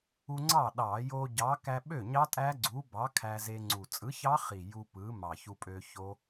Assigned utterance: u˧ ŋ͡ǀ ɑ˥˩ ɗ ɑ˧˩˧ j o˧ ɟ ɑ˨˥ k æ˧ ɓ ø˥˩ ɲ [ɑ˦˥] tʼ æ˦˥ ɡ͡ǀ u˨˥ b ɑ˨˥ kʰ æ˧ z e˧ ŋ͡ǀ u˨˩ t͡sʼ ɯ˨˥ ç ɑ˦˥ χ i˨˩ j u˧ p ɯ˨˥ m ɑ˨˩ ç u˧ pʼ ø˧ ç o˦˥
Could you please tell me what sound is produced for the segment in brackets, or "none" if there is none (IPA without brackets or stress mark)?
ɑ˦˥